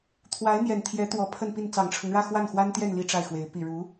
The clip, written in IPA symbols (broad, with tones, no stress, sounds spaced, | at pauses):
t̪ʰ w a˧˥ ɪ̯ n̪ j ɛ˨˩ n t̪ʰ j ɛ˧˥ t̪ w ɔ˧˥ pʰ ə˥˧ n p i˥˩ n t͡s ɑ˨˩ ŋ ʈ͡ʂʰ ɤ˦ ŋ ɻ ä˥˧ x w a˥˩ n x w a˥ n t̪ j ɛ˥˧ n l i˥˧ ʈ͡ʂ a˥˩ ɪ̯ x w e˧˥ ɪ̯ p i˨˩ ɻ u˧˥